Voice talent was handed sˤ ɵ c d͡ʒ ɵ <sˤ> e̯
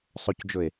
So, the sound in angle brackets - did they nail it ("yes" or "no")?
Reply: no